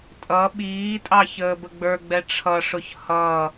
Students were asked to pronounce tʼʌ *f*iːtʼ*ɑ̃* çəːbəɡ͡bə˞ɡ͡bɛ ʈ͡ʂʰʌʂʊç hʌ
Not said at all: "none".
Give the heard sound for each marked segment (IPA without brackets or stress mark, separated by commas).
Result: ɓ, ɑ